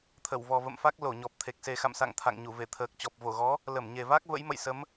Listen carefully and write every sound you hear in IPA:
t̪ʰə˧˩wvɔ˨˩və̰˧˨mfa˦˥k̚ lo˧˩ ɲɔ˨˩p̚t̪ʰe˨˩k̚ se˨˩xa̰˧˨msa̰˧˨ŋ t̪ʰa̰˧˨ŋɲu˧˩ ve˧˩t̪ʰəː˨˩k̚ t͡ɕɔ˨˩p̚vo˧˩ɣɔ˨˦ | lə˧˩mɲe˨˩va˦˥k̚ və̰˧˥jmə̰˧˨jsə˨˦m

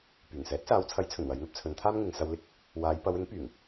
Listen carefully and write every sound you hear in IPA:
pyː˨˩ŋsɛː˨˥t̚saː˨˧wt͡sʰɐ˨˥j t͡sʰɵ˨˩nwɐ˨˧jn̪ɐ˥p̚ t͡sʰɵ˨˧nt̪ʰaː˥mŋɪ˨ŋ sɐ˧wlɪ˥k̚ | waː˨˧j pɐ˨˧wɪ˨˥ŋ pyː˨˩ŋ

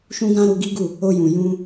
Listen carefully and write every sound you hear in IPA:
ʃũ˧ɡã˧ ɾu˧ɡi˦ɡu˦˨ | o˧jũ˨ jũ˧

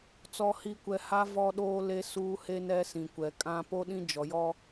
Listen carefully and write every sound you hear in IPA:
t͡sɔ˨hi˨kʷɛ˨ ha˦ vɔ˦ɗoː˦le˦suː˦ he˦nɛ˦sĩ˨kʷɛ˨ kʼã˦ po˦ɗĩ˦ d͡ʒɔ˨jɔ˦

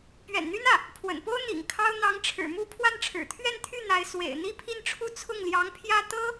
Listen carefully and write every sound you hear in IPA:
pɥɛ̰˨˩nn̪y˥n ä˥˩ | pʰwə̰˨˩npo˥ʊ̯ n̪ḭ˨˩ŋkʰɑ˥ʊ̯ n̪ɑ˧˥ŋʈ͡ʂʰɻ̩˨˩mu˥˧ pʰwa˥˩nʈ͡ʂʰɻ̩˨˩ t̪ʰɥɛ˥˧nt̪ʰy˥˩ n̪a˧˥ɪ̯ swḛ˨˩ɪ̯ n̪i˥˧pʰi˥˧nʈ͡ʂʰu˥˧ t͡sʰʊ˥˩ŋljɑ˧˥ŋpʰjä˥ t̪ɤ˥

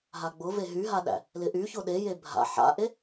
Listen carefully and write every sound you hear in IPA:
ɦaɡ͡bʊ veɦyɦaɗæ̰ | lɪʔyçʊ ɗeje bʱa̰ ħa̰ʔe

